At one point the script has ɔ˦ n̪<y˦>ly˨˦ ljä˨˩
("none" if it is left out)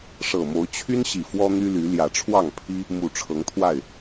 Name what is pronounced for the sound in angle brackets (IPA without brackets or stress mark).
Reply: y˦